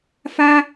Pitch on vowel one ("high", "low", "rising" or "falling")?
high